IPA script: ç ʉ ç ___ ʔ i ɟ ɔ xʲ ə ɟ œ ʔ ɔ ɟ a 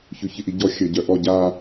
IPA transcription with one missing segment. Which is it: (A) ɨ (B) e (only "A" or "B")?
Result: A